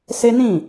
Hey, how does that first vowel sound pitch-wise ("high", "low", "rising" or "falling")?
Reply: high